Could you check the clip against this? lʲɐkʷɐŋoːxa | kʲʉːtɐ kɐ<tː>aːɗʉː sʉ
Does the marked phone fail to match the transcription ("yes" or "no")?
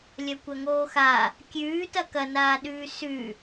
yes